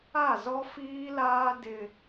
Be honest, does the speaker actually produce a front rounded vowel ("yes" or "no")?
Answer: no